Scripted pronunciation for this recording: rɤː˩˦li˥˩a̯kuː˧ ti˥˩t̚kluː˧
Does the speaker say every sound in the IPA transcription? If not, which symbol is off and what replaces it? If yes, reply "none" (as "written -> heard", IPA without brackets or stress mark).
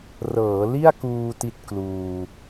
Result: none